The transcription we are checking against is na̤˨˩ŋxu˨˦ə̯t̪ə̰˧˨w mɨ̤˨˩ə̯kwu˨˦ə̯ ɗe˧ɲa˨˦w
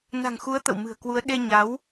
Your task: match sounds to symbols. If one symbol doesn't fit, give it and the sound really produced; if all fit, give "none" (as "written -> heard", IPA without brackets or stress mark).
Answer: none